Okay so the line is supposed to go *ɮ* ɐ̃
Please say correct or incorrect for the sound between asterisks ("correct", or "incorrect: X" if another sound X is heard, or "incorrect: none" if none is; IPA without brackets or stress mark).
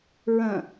incorrect: ɹ